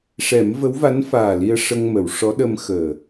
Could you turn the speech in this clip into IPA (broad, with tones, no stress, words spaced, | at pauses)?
ʂɛ˨˩˦mvə˧˥wva˧˥nfaː˨˩ li˧ə̯ ʂə˧ŋmə˨˩˨wʂɔ˧˥ ɗə˧mxəː˨˩